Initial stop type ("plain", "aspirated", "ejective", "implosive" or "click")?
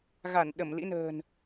implosive